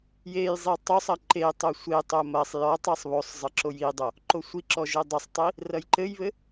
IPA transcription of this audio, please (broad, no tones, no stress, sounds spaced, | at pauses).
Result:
j e j zˤ i tˤ o sˤ ɐ ǃ e tˤ o sʷ e tˤ o m ɐ sˤ j ɔ tˤ e sˤ β o sˤ zˤ ɘ ǁ o j i dˤ o | ǃ o sʷ i ǁ ɔ ʒ ɘ dˤ ɘ sˤ tˤ i | r ɐ j ǃ ɘ j β ɘ